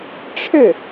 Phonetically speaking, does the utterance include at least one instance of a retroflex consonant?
yes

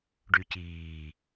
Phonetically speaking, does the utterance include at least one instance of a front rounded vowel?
yes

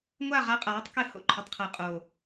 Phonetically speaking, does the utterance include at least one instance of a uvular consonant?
yes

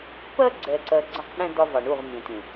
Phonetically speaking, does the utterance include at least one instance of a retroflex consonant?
yes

